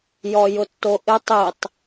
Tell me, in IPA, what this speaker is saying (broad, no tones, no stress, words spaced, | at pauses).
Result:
jɔjʊtːoʔɪ tˤitˤ